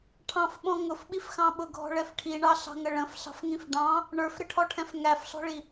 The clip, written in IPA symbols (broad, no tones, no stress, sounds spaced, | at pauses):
ʈʰ ɑ̃ f ɓ ɔ̃ ŋ ʊ f ɓ i f x ɑ̃ ɓ ʊ ɡʱ ɔ̤ ɭ ɛ f ʈʰ i ɳ ɑ ɬ ɑ̤ ŋ ə ɭ ə̃ f ɬ ɑ̤ f ŋ ĩ f ɖ ɑ̃ | ɳ ə˞ f ɾ ɪ ʈʰ ɔ ʈʰ ɛ̃ f ŋ æ f ɬ ɔ̤ ɭ i